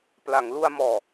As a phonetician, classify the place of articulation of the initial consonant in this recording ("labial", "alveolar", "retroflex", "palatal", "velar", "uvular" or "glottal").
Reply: labial